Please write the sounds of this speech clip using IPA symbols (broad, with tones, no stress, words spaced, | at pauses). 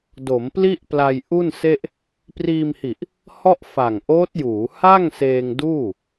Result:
do˩˦mpli˥˩ʔpla˧j ʔu˥˩nse˥˩ʔ | priː˧mhi˨˩ʔ | hɔ˥˩ʔfa˨˩ŋʔoː˦˥t̚juː˩˦ ha˥˩ŋ seː˧ŋduː˥˩